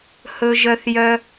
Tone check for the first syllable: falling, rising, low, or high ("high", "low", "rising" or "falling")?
high